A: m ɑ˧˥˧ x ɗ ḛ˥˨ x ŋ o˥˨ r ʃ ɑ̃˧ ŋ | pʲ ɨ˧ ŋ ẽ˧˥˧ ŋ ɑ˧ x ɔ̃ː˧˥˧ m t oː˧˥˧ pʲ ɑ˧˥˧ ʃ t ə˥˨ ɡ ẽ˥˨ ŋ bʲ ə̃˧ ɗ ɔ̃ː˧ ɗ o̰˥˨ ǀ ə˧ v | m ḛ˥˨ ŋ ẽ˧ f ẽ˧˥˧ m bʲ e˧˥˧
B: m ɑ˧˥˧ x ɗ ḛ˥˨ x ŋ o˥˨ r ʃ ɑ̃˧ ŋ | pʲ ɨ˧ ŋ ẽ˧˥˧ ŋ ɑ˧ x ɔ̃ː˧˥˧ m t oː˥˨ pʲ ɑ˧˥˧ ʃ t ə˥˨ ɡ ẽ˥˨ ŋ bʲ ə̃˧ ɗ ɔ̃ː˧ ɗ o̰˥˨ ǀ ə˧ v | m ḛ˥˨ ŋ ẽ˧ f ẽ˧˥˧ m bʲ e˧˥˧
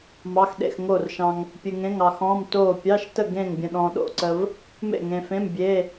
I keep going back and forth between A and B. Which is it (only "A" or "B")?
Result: B